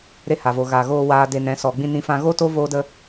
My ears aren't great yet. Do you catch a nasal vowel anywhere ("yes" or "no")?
yes